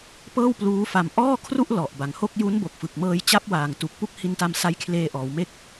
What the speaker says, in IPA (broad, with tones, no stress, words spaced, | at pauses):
pɤː˥˩w pluː˦˥fa˧m ʔɔː˥˩kʰru˥˩ʔ lɔ˨˩ʔba˨˩ŋho˥˩k̚ ju˦˥nbo˨˩k̚fɯ˨˩k̚mɤː˧j t͡ɕa˦˥p̚waː˨˩ŋtu˨˩k̚ pu˥˩k̚hi˧nta˧m sa˦˥jkʰleː˧ ʔɔː˩˦wme˦˥k̚